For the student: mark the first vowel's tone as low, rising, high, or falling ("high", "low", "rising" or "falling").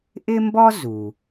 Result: high